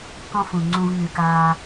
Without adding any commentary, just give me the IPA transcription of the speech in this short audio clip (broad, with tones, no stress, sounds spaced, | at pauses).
k ɔ̃˦ f ũ˩ ŋ͡ǀ ũ˨ v ŋ ʉ˩ k aː˨